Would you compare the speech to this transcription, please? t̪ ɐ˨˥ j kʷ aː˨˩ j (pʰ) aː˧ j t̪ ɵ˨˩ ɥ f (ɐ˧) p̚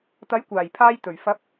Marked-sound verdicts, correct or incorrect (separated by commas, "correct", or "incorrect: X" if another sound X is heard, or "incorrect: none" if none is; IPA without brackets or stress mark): correct, incorrect: ɐ˨˥